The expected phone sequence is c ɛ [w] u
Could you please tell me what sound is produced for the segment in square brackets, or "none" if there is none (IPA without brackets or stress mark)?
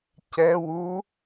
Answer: w